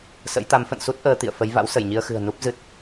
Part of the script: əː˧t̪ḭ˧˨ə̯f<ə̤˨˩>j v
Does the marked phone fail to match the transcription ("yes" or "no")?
yes